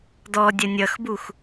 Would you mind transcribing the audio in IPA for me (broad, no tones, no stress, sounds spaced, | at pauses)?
d ɔ dʲ ɐ nʲ ʌ x b u x